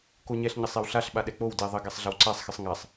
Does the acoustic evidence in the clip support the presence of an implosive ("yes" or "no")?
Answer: yes